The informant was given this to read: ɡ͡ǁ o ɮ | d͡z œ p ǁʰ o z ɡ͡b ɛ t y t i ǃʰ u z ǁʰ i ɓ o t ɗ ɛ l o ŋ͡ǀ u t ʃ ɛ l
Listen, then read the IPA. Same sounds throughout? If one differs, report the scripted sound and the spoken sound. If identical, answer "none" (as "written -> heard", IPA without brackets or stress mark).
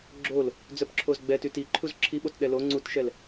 ɮ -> l